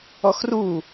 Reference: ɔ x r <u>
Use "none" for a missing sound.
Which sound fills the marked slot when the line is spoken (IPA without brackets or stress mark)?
u